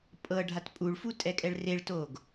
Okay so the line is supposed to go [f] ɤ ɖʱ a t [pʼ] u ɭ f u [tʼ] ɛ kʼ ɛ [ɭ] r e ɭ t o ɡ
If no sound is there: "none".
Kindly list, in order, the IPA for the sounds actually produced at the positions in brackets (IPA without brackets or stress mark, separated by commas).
pʼ, pʼ, tʼ, ɭ